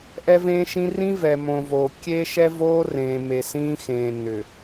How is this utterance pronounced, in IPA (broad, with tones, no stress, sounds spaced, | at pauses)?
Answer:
ʔ ɛ˦ v ẽː˦ ʃ ĩ˦ r ĩ˦ v ɛ˨ m õ˨ v oː˨ kʲ e˦ ʃ ɛ˦ v oː˦ r ẽː˨ m e˨ s ĩː˦ x ẽː˨ n ʏ˨